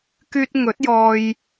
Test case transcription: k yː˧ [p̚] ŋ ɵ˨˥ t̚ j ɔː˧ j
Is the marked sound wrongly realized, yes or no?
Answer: yes